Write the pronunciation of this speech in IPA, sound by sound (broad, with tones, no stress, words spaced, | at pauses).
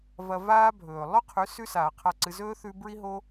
vɐ˧vaː˦bʱɵː˨ lˠɵ˦qʰʉ˨˦ sʉ˧saː˨ qʰa˦˨ǀɨ˧ zɵː˧ θʉ˧ bɹi˦ɦo˦